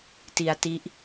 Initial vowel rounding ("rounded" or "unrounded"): unrounded